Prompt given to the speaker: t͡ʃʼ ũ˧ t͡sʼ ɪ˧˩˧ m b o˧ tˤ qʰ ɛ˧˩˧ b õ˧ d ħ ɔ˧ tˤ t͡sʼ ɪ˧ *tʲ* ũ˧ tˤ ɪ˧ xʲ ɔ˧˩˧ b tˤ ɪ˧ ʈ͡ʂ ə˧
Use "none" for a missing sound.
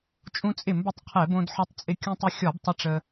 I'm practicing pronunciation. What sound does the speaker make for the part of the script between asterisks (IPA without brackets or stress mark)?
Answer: kʲ